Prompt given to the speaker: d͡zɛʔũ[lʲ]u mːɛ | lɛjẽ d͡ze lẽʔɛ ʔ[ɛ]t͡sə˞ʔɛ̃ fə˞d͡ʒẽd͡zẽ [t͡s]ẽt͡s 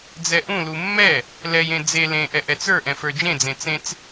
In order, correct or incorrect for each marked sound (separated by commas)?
incorrect, correct, correct